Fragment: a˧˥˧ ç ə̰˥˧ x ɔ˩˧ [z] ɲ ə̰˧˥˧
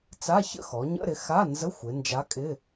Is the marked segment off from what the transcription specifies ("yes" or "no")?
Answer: yes